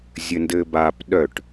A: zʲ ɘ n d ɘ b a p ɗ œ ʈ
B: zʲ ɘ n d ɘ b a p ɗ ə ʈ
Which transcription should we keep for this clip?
A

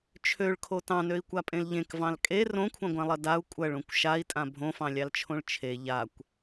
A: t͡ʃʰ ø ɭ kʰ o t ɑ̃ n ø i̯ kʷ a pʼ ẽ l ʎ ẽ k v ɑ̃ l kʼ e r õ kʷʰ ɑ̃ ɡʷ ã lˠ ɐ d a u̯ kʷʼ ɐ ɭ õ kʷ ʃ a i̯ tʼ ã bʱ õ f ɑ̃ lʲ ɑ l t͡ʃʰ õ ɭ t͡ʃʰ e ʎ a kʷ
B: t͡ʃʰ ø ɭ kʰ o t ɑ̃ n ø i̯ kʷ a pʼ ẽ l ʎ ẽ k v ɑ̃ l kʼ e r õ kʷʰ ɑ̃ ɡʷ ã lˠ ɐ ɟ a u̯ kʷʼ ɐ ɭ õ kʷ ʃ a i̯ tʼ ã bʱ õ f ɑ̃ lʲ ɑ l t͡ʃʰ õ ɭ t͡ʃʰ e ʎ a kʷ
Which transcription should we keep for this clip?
A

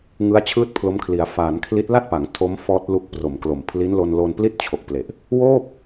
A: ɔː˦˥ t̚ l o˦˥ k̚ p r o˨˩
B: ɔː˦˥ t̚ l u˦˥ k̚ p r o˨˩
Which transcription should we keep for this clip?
B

